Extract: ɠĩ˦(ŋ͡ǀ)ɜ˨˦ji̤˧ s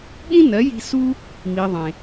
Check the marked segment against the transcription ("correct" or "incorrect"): incorrect